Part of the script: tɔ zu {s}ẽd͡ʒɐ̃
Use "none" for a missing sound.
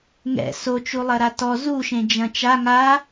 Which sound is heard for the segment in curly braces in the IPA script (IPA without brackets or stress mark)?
ʃ